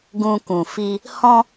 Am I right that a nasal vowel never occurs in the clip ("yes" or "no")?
no